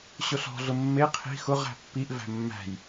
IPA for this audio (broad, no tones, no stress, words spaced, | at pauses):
ɕʊɬɔ̤ɮʊ mːe qʰi̤ xʊʁ æ̤pːiʔ væ̤mːæ̤j